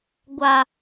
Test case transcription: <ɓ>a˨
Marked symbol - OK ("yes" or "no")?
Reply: no